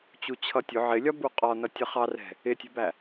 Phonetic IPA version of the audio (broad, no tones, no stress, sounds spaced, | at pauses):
t͡ɕ u t͡ɕʰ ʌ tʲ ʊ ʕ ɪ lʲ ɒ b u qʼ ɒ n ʌ tʲ ʌ χ ɑ r ɛ̤ | ɪ tʲ ɛ̤ b æ